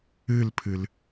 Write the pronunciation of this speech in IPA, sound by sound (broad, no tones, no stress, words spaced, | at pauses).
ɨlpʰɨl